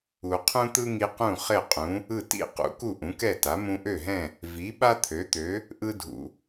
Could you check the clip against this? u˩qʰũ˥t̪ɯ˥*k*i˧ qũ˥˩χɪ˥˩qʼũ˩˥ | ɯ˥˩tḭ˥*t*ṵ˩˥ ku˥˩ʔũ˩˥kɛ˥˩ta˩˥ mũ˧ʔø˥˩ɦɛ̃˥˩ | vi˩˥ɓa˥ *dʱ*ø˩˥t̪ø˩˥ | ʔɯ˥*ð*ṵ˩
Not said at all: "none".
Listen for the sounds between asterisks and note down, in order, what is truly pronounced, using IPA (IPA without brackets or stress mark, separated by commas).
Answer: ŋ, q, t̪ʰ, dʱ